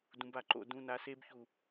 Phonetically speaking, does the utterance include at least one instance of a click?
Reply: yes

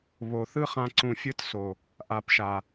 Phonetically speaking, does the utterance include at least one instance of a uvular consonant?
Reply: yes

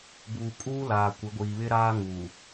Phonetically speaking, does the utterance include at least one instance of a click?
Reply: no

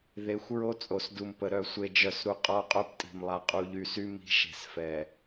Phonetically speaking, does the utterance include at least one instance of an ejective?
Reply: yes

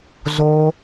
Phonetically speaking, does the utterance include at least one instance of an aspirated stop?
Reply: no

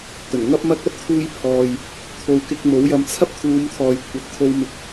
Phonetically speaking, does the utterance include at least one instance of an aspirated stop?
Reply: yes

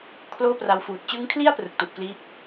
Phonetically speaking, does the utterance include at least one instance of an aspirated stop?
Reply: yes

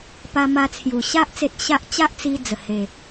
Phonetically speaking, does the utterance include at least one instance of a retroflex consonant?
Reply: no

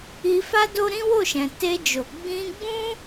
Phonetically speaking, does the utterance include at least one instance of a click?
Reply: no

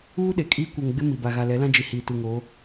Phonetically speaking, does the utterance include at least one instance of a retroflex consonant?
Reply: no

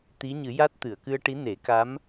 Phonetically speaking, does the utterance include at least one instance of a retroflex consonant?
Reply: yes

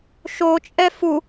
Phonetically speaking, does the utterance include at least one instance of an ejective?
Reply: yes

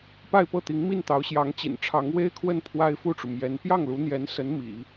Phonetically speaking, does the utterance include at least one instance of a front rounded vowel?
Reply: no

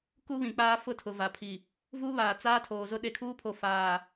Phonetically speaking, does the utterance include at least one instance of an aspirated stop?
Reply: yes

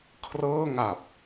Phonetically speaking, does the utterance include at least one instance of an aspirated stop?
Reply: yes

